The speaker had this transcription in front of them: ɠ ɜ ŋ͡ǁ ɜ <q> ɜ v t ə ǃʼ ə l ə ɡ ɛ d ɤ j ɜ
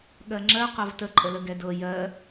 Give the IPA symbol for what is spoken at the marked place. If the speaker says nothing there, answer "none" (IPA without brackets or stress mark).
q